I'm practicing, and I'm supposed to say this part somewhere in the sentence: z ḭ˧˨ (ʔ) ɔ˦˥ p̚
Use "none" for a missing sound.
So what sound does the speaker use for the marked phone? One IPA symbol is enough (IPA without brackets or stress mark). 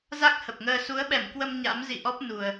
ʔ